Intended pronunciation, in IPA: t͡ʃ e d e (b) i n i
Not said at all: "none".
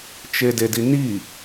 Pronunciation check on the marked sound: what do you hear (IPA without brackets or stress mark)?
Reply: d